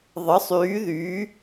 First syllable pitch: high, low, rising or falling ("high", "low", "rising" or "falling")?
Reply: rising